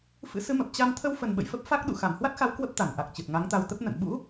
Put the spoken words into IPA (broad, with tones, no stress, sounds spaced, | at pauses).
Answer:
f ɨ̰˧˥ s ɨ˨˦ m ə˨˩ p̚ t͡ɕ a˧ m t̪ʰ ə˧ w f ə˨˩ n ɓ ə̰˧˨ j f ə˦˥ p̚ f a˦˥ k̚ ɗ ṵ˧˨ x a˧˩ m h w a˦˥ t̚ x a˨˦ w k w ə˦˥ p̚ t̪ a˧˩ n ʔ a˨˩ k̚ t͡ɕ ɨ˨˩ t̚ ŋ a˨˦ ŋ t̪ a˧ w t̪ ə˦˥ p̚ n ə̰˧˨ n ɓ ṵ˧˥